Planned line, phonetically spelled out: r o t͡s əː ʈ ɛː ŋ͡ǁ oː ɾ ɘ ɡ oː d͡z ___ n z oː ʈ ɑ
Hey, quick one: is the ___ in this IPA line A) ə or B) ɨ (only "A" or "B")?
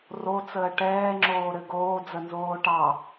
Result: A